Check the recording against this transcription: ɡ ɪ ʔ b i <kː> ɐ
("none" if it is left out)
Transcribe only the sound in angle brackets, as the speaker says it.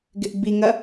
ŋ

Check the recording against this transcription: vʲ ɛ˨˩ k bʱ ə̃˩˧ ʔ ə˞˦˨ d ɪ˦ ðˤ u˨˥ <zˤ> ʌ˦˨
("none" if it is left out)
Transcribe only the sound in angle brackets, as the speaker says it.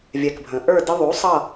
sˤ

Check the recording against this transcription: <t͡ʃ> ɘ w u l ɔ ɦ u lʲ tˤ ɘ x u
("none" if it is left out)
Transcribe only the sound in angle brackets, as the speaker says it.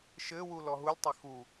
ʃ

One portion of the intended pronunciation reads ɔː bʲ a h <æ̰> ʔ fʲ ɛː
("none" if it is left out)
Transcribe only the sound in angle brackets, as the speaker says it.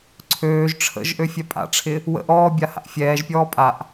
a̰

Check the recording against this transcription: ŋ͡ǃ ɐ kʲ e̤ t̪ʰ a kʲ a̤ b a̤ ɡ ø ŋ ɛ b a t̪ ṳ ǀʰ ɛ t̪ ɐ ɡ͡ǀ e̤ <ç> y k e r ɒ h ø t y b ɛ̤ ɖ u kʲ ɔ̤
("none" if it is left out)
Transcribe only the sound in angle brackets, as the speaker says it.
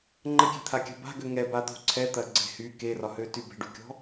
h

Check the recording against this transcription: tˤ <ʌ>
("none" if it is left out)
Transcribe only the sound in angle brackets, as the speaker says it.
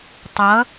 ʌ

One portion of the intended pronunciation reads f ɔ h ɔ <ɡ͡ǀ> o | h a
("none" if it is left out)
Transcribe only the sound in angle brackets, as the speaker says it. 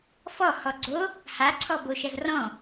ɡ͡ǀ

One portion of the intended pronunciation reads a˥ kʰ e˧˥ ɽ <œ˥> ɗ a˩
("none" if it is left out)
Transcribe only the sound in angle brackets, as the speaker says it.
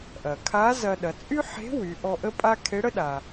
ə˥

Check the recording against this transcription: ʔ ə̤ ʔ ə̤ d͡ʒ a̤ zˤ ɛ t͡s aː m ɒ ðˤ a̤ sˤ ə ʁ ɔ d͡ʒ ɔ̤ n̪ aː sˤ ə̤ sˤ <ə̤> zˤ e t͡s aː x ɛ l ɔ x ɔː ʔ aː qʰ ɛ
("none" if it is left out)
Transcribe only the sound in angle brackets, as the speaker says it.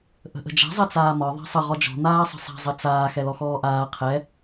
a̤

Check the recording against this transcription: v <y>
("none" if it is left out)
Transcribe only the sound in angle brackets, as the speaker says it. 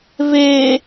e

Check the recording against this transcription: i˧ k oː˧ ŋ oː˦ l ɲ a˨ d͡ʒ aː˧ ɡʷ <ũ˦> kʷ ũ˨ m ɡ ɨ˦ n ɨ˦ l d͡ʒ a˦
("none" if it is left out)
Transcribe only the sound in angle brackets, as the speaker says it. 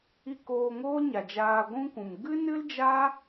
ũ˦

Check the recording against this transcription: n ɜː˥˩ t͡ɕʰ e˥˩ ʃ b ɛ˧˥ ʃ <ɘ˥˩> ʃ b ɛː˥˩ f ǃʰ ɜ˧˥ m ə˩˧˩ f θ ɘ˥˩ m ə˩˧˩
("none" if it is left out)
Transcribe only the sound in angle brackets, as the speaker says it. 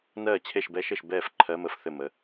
ɘ˥˩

